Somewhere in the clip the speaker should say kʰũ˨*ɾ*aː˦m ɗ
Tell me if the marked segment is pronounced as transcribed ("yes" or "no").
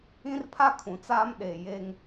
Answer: no